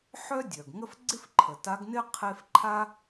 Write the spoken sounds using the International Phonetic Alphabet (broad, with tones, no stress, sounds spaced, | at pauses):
ħ œ˥ dʲ œ˩ ɡ ŋ ə˥ f ɡ͡ǀ ɪ˥ f ǃʰ ə˩ t a˧˥ ɡ n ɪ˥ qʰ e˥ f ǃʰ a˥